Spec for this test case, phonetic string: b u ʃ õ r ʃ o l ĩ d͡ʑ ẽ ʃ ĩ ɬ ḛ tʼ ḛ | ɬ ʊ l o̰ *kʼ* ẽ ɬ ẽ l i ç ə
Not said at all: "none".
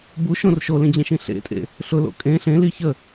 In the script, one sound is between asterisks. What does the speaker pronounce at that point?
kʼ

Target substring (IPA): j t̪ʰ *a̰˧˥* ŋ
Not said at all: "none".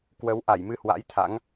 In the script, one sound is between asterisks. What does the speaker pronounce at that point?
a̰˧˥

